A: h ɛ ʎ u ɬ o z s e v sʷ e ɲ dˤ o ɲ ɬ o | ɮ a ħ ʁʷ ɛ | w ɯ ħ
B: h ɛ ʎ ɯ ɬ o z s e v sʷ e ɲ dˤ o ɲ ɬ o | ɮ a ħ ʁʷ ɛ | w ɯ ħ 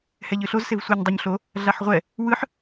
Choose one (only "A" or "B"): B